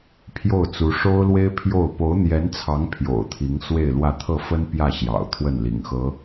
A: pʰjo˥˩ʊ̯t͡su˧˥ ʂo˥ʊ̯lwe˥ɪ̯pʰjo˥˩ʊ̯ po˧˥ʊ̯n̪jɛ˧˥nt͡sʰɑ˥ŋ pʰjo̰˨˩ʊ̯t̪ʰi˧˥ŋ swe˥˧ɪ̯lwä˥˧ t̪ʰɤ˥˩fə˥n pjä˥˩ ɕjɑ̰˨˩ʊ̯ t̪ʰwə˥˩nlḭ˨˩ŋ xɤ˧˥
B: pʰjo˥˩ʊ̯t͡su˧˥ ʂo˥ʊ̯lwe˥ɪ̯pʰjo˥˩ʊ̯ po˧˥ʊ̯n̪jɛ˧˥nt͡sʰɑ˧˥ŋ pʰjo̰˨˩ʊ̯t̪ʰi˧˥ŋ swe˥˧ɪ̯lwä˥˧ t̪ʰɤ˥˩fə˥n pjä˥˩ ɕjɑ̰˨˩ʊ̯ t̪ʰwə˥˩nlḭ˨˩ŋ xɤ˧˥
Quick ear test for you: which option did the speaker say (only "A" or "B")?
B